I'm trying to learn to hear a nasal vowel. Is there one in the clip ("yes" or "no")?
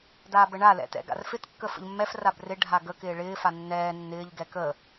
no